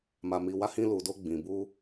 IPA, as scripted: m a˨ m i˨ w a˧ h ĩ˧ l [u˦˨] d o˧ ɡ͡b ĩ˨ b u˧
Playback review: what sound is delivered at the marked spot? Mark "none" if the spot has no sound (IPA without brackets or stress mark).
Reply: u˨